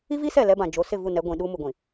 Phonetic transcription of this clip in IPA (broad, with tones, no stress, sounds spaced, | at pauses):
i˦ v i˦ s ɛ˦˨ l ɛ˦ b ã˨ d͡ʒ o˨˦ s ɪ˦˨ v u˦˨ n ɛ˨˦ ɡʷ ĩ˨ ɗ u˦ m u˨ ɡʷ ĩ˨